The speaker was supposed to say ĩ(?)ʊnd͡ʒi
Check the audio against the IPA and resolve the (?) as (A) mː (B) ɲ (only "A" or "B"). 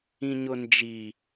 B